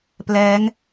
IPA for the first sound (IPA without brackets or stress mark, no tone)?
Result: p